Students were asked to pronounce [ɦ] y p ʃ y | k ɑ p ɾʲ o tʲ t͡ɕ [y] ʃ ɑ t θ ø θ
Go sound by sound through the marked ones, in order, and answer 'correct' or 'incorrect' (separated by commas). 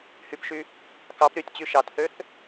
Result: incorrect, correct